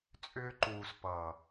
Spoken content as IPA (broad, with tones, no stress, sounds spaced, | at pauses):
t͡sʼ ʏː˧ ǃ uː˨ s p ʌː˨